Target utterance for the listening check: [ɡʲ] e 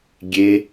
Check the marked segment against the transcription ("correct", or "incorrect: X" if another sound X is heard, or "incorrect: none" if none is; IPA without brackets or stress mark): correct